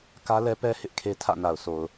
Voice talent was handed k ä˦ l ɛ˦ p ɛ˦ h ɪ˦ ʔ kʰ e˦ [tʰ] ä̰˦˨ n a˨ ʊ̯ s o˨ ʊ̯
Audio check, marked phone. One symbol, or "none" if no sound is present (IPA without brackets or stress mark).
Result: tʰ